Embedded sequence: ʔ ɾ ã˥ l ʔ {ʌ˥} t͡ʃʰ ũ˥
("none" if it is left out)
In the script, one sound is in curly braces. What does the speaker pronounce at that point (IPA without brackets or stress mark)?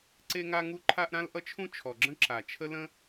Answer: ʌ˥